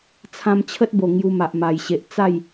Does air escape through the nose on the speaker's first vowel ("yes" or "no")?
yes